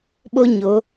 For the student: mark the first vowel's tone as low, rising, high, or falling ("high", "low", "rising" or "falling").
high